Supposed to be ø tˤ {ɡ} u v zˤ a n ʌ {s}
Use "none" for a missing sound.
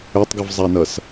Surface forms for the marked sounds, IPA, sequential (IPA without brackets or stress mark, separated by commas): ɡ, s